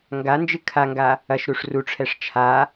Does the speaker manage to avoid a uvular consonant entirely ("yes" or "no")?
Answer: yes